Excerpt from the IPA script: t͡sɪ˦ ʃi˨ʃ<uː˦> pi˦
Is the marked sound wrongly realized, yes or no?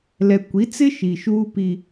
no